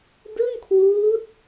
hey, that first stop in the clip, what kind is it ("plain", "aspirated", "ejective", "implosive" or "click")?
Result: plain